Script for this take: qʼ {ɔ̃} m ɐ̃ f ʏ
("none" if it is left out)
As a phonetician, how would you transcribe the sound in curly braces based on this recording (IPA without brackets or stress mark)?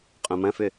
õ